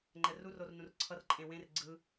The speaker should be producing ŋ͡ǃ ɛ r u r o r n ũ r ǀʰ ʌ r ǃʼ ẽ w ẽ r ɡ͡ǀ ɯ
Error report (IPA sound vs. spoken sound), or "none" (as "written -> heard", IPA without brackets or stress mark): none